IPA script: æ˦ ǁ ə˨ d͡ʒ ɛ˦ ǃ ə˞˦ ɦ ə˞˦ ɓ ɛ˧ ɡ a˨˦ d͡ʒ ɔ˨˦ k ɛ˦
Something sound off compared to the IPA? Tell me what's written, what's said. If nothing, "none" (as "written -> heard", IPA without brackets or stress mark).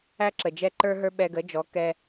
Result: a˨˦ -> ə˨˦